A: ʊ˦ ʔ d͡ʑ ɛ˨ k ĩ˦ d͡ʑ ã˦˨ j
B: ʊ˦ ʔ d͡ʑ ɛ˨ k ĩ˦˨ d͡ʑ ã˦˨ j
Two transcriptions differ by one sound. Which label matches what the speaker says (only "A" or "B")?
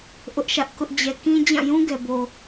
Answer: A